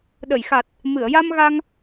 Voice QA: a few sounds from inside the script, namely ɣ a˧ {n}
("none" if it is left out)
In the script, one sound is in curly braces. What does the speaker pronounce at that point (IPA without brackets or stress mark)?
ŋ